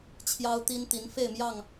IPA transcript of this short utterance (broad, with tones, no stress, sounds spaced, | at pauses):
t͡ɕʰ j ɑ˦ ʊ̯ t̪ i˦ n t̪ i˨˦ n f e˥˨ ɪ̯ m j ɑ˥˨ ŋ